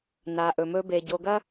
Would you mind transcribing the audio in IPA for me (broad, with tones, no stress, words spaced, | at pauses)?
na˨ʔɵ˨mɵ˦be˨ ɟo˨ɡɐ˦